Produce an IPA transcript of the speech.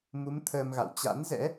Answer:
mu˨˦m t̪ʰəː˧mɣa̰˧˨w t͡ɕa̰˧˥nzɛ̰˧˥

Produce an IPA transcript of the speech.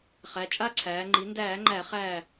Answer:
χæ˩˧t͡ʃʼa˥˨ǀʰæː˩˧ ŋ͡ǃi˩˧ndæː˧˩˧ŋ͡ǃæ˧˩˧χæː˧˩

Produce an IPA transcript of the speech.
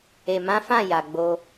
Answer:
e˨mã˨˦ fã˦˨ ja˨ ɡ͡bo˧

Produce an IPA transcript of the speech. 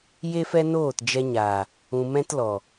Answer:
je˦fɛ˦noː˦˨t d͡ʒɛ˧ɲaː˨ | ũ˧ mɛ̃˦tlɔ˨

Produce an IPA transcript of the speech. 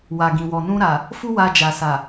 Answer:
wa˨ɡĩ˨wɔ˨ nũ˧ɾa˨ | fu˦wa˧ d͡ʒa˨sa˨

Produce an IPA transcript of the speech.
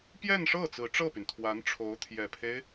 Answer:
pjɛ˥˧nʂɤ˥˩ t͡sɹ̩˧˥ʈ͡ʂɤ˥˩py˩nt̪ʰwa˧˥n ʈ͡ʂʰo˧˥ʊ̯t̪ʰjɛ˨˩pʰe˦ɪ̯

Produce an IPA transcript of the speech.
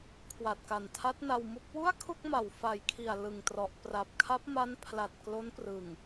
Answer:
kʰwa˨˩t̚ka˨˩ntʰa˦˥t̚ na˧wmu˦˥k̚ wu˥˩a̯kʰu˥˩k̚ma˨˩w fa˨˩jkʰi˨˩a̯ lɯ˨˩ŋtrɔ˨˩ʔ pra˨˩p̚kʰa˦˥p̚ma˦˥n pʰla˨˩t̚klo˦˥nprɯ˨˩ŋ

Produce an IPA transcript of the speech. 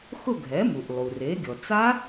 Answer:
xʊ˥˧ɡʱɛ˩˥mu˩ʔlˠu˩ re˩˥ɡʲɔ˩ t͡sa˦˥

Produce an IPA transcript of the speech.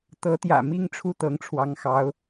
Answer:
t̪ɤ˧˥t̪jä̰˨˩ mi˥ŋʈ͡ʂʰu˥˩t̪ɤ˧˥ŋʈ͡ʂʰwɑ˧˥ŋ xɑ˧˥ʊ̯

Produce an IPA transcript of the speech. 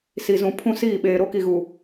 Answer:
si˨ zũ˨ pʰũ˦siː˦˨ɓeː˨ ɾo˦ki˨ɣu˨

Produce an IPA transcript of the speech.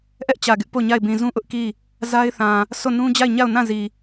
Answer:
ʔɛ˦ʔt͡ɕä˨ɡɪ˦ʔ po˦˨ɲa˦˨ɪ̯bĩ˨ zũ˦ʔʊ˦ʔki˦˨ | za˦ɪ̯θã˨ | so˦˨nũ˦ d͡ʑa˦˨ɪ̯ɲa˦˨ʊ̯ nã˦˨zi˨

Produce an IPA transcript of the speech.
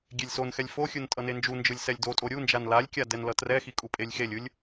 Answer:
ɡʲelʲsonxɛlʲ foxʲɯn tʼʌnend͡ʒund͡ʒɯlʲ sɛlʲdotʼo ɾʲund͡ʒan lalʲkʲa dɛnlʌtrɛxi kʼupʼelʲxelʲɯlʲ

